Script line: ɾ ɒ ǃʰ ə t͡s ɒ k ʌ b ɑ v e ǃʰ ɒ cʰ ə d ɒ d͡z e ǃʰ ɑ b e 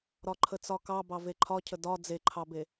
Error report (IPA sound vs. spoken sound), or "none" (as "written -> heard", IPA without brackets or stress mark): ʌ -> ɑ